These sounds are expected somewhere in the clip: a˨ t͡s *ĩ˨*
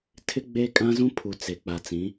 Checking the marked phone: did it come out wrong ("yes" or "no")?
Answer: yes